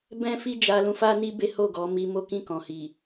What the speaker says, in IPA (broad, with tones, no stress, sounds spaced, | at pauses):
b ɛ̃˦ f i˦ d͡ʒ a˧ l ũ˧ f a˦ n i˦ b e˦ h o˦˨ ɡ ɔ˨˦ m i˧ m o˦ k ĩ˦˨ k ɔ̃˨ h i˨